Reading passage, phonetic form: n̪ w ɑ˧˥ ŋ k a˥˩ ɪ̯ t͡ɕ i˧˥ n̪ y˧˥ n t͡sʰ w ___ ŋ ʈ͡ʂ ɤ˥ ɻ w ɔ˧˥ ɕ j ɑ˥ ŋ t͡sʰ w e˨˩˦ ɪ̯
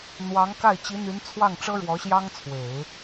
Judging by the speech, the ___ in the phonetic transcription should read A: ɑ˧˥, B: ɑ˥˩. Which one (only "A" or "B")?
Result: B